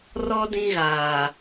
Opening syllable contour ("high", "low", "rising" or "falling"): high